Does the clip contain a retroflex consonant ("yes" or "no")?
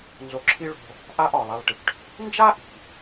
yes